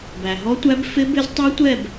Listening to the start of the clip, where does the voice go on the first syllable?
low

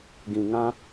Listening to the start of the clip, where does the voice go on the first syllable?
low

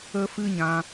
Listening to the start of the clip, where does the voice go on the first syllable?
high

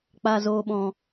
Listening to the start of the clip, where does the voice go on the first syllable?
low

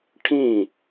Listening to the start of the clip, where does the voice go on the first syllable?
falling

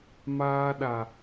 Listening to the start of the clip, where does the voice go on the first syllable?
high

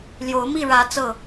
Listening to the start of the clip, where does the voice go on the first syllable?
rising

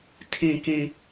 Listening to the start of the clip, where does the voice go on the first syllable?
low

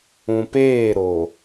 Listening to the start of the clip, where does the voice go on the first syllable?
low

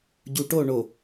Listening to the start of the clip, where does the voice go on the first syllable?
low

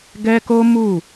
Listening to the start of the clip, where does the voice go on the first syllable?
high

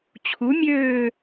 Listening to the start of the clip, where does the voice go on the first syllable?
rising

